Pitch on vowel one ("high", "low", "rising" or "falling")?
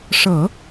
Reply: low